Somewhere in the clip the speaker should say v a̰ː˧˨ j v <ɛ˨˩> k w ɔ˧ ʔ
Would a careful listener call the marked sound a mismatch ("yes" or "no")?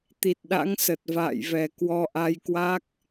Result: no